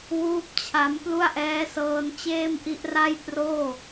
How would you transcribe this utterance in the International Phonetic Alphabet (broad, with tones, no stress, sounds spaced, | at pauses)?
w uː˥˩ p̚ t͡ɕʰ a˦˥ m p l u˥˩ a̯ ʔ ɛː˦˥ s ɤː˧ n t͡ɕ eː˥˩ m ʔ i˦˥ ʔ r a˥˩ j p r oː˥˩